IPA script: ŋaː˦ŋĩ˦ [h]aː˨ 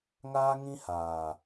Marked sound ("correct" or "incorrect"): correct